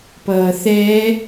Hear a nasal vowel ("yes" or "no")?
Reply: no